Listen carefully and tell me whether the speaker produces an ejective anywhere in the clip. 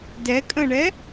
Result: yes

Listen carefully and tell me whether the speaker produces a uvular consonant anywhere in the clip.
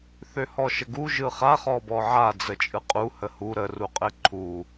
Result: yes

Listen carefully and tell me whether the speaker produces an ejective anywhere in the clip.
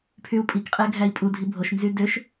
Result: yes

